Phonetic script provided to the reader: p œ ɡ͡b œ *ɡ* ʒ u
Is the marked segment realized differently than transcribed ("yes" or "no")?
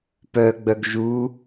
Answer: no